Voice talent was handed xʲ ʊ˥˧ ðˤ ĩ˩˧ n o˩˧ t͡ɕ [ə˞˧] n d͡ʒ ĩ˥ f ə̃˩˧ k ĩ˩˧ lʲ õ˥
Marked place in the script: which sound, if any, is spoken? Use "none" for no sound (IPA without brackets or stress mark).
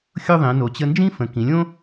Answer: ə˧